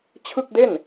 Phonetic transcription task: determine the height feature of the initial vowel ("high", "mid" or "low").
high